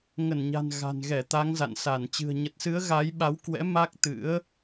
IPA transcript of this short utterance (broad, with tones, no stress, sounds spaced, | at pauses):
ŋ ə˧˩ n ɲ a̤˨˩ n ɣ a̤˨˩ n ɣ ɛ˧˩ t̪ a˨˦ ŋ z a̰˧˨ n s a˧˩ n t͡ɕ ɨ̤˨˩ ə̯ ɲ ə˨˩ t̚ s ɨ˨˦ ə̯ ɣ a˨˦ j ɓ a˨˦ w k w ɛ̰˧˥ m a˦˥ k̚ t̪ ɨ̰˧˥ ə̯